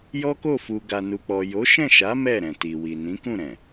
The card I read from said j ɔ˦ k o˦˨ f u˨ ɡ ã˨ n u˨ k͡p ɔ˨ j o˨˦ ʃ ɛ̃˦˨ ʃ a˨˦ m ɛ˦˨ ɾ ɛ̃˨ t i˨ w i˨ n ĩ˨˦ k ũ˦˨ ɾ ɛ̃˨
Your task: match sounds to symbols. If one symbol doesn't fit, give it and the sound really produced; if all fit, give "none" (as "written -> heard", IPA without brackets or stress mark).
ã˨ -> a˨